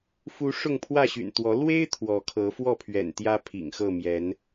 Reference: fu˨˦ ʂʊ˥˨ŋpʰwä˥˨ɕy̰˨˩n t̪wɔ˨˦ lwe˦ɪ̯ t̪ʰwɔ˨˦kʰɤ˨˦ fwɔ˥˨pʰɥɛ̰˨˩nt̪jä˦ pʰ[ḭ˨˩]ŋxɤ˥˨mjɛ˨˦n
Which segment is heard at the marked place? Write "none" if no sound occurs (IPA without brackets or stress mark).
ḭ˨˩